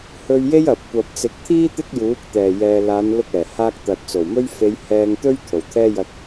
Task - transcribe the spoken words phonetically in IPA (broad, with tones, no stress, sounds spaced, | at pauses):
h ɵ˧ ɥ j e˥ j ɐ˨ p̚ kʷ ɐ˨ p̚ t͡s ɪ˨˥ k̚ t̪ʰ iː˥ t̪ ɪ˥ k̚ j uː˨˥ k̚ t̪ ɛː˨˩ j ɛː˨ l aː˨˧ n l ʊ˧ k̚ ɛː˨˩ h aː˧ k̚ t̪ ɐ˨ t̚ t͡s o˨˩ w m ɵ˥ ɥ f e˨˧ j h ɛː˧ ŋ t̪ ɵ˥ ɥ t̪ʰ o˨˩ w t̪ʰ ɛː˥ j ɐ˧ t̚